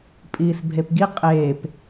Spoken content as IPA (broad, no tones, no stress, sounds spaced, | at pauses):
pʼ iː s bʱ e p ɡ i qʼ eː p